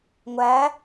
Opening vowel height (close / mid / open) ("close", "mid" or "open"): open